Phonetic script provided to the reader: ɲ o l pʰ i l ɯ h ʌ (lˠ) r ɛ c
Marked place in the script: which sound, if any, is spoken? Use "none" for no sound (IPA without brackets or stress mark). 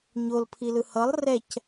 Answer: lˠ